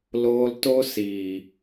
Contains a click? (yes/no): no